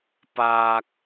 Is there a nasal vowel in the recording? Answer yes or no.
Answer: no